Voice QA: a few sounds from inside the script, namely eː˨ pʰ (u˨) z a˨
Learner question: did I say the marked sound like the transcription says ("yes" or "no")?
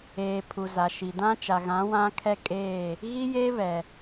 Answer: yes